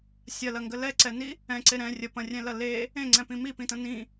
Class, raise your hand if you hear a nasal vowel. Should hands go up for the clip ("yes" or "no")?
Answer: yes